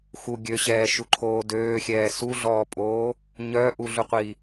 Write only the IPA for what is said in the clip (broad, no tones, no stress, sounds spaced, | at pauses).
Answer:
x u ɡʲ ø ɕ ɛː ʃ u ǃʰ oː d øː xʲ ɛː s u ɮ ɔː pʼ oː | ɲ œ ʔ u ɮ u qʷ i